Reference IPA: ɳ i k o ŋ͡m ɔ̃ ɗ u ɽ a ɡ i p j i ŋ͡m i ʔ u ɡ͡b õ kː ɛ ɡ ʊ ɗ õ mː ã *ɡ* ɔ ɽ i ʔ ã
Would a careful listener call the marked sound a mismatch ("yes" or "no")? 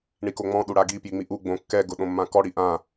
yes